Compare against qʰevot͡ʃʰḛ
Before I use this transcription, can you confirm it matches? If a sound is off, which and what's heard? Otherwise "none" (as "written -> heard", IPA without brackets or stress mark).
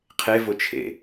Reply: none